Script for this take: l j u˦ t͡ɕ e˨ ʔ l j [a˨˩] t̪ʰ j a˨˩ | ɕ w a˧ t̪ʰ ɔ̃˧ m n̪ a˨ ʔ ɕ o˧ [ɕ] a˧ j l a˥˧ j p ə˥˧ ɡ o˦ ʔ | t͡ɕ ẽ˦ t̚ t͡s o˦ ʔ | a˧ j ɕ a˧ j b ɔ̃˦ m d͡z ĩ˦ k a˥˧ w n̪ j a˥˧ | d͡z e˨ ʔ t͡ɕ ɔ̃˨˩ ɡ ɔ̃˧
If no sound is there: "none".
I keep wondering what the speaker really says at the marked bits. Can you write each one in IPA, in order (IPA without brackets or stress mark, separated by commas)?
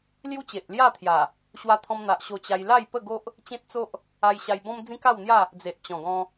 a˥˧, t͡ɕ